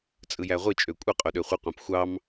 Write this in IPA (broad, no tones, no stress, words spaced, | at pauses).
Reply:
t͡sʼɯjæʁʷi t͡ʃʼøkʷʼɯ qʼoɗøχʷɯqʷæ̃p xʷɑm